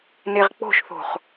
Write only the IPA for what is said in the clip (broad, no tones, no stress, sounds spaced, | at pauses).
n e ʁ k͡p o̤ ʃ θ o̤ χ